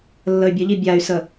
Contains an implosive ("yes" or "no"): no